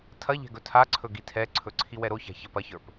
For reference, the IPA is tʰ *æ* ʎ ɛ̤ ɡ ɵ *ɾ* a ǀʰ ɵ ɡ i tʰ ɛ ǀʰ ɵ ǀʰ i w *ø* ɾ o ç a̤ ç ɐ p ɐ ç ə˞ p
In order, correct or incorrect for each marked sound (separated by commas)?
incorrect, incorrect, incorrect